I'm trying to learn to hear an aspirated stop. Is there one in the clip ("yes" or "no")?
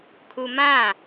yes